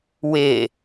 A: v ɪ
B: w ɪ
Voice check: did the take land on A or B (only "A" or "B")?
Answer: B